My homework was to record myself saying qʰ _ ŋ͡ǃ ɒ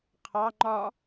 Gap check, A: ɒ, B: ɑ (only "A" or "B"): B